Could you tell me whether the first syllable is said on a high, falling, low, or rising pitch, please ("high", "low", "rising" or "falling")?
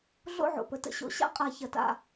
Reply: falling